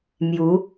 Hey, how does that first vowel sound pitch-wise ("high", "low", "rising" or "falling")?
rising